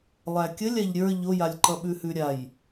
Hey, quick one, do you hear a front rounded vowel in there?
no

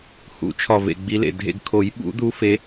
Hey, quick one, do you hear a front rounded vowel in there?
no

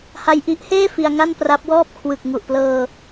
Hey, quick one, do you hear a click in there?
no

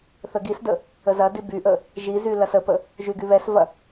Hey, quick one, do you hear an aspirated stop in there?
no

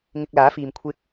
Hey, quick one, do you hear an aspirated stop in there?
yes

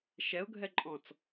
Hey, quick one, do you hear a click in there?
yes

